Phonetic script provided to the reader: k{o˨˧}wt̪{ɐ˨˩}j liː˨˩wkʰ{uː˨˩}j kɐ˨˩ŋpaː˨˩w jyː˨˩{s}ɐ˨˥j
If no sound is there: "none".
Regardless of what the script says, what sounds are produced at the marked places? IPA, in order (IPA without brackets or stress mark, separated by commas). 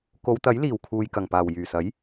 o˨˧, ɐ˨˥, uː˨, s